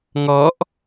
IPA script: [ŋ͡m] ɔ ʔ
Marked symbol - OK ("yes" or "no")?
no